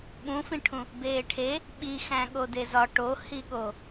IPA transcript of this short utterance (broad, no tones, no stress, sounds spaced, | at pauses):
ɓ ũ f ĩ ʈʰ ũ | b eː ʈʰ e | ɓ i x æ̃ ɠ o d e z ɒ ʈ o h i ɠ o